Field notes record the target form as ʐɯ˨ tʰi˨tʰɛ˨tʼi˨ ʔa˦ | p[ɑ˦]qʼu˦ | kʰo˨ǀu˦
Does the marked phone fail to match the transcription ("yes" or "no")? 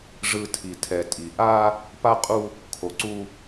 yes